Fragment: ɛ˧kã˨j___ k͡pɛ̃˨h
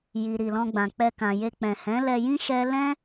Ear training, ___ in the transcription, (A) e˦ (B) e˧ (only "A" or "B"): B